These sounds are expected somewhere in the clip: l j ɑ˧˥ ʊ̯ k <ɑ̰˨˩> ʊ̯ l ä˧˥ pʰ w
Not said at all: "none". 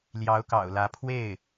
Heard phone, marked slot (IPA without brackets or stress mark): ɑ̰˨˩